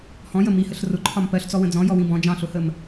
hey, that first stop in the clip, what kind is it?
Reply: click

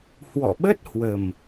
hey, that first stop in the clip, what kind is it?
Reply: implosive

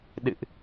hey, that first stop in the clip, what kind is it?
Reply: implosive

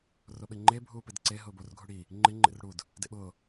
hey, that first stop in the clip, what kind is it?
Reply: implosive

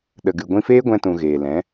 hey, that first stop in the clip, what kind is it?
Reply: implosive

